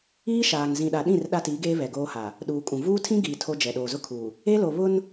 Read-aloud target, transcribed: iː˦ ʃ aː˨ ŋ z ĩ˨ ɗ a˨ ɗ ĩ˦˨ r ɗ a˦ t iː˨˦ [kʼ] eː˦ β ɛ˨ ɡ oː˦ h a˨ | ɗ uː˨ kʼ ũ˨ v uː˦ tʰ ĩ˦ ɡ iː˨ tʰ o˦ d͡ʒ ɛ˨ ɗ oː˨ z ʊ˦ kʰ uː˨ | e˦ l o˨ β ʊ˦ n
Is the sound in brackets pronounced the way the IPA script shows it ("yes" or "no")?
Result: no